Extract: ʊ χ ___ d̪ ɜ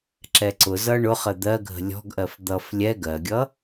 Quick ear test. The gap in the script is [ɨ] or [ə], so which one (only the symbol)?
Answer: ə